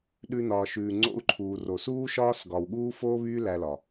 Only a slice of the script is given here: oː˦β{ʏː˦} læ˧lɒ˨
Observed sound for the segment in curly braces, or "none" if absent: yː˦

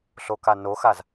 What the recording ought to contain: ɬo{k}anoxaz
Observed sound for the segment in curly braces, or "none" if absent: k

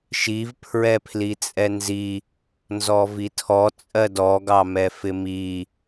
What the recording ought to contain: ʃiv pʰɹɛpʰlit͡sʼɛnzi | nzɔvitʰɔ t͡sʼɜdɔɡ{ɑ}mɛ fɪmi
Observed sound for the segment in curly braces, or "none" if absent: ɑ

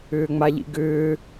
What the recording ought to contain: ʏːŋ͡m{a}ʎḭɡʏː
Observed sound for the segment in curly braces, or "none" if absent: a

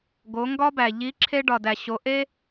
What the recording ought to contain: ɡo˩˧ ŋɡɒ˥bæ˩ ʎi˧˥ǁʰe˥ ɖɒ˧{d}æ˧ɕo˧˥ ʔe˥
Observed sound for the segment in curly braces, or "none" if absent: d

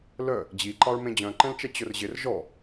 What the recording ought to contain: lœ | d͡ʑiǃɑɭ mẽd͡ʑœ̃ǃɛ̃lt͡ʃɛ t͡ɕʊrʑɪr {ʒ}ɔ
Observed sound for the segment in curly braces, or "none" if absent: ʒ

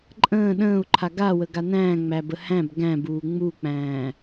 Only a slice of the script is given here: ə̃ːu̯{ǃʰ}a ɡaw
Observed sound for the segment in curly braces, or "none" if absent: ǃʰ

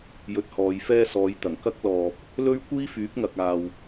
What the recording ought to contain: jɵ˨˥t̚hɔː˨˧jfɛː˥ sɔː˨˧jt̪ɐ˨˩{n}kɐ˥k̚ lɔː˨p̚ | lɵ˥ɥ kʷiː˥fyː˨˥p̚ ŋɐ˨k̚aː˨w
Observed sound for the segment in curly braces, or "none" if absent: ŋ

